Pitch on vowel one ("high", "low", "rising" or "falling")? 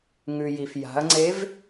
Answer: low